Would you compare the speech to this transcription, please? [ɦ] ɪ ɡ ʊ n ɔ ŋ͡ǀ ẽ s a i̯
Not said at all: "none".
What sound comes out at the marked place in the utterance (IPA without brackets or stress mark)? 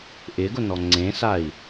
ʔ